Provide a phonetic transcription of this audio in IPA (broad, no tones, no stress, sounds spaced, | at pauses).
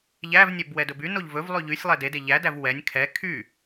ʎ æ v nʲ ɛ b w ɛ d ɵ b y n o ʎ v ɵ v lˠ y ʎ y sʲ lˠ ɛ d e d e ʎ æ d æ v w ɛ nʲ kʰ ɛ kʰ y